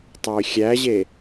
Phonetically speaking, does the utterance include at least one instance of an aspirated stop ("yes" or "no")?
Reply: no